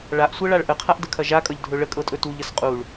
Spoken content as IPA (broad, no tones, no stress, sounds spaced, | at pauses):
ɭ a ʔ sʷ ɤ ɭ a ɭ ʔ ə qʰ a ʔ d ə kʰ ɐ ʒ a kʼ ʌ ʎ dʱ ɵ ɭ ə kʼ ɤ tʼ ɵ t u ʎ ə s qʼ u ɭ